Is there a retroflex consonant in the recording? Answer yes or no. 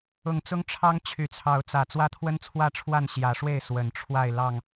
yes